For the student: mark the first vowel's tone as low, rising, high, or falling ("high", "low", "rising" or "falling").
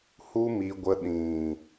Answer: high